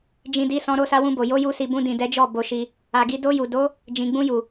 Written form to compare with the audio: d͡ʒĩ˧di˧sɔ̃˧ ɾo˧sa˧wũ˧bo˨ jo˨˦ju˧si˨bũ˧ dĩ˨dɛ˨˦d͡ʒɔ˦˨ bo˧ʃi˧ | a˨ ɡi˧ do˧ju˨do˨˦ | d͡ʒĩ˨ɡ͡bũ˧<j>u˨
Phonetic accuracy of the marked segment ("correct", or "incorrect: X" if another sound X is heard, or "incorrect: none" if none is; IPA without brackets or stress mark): correct